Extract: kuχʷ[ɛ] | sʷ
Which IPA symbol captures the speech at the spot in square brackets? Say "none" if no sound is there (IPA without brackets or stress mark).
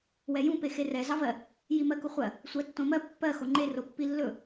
ɜ